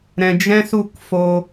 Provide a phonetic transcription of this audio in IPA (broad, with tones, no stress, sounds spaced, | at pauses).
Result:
ɾ ɛ̃˨ d͡ʒ ɛ̃˦ s u˦˨ k f o˧